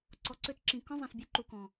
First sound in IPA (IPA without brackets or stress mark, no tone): ǀ